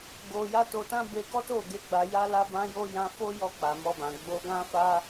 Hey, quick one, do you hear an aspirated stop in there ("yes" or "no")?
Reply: no